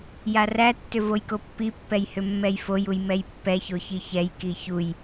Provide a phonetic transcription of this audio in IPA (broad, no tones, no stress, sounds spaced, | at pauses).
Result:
j a r æ tː ʏ v o j k o pː i pː ɛ j h ʏ mː ɛ j f o j u j m ɛ j pː ɛ ç o ç i ç ɛ j k i ç u j